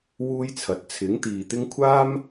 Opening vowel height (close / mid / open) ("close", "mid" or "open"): close